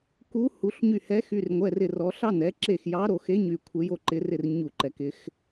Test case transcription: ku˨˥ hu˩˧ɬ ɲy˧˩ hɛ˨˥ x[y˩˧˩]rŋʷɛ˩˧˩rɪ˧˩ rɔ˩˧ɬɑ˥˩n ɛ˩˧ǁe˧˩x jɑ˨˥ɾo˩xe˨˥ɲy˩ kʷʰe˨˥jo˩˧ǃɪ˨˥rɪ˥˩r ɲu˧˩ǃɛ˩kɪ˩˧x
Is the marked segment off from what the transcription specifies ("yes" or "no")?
no